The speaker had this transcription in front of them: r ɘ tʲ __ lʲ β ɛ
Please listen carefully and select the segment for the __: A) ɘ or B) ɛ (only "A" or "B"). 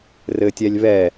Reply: B